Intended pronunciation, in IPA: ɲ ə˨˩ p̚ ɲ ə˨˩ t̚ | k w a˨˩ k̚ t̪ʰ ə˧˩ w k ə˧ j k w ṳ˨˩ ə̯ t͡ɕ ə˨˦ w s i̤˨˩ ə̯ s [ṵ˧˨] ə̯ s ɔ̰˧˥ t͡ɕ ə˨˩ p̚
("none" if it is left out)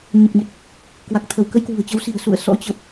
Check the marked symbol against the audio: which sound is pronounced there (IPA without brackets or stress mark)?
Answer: ṵ˧˨